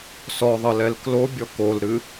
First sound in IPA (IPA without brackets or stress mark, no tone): s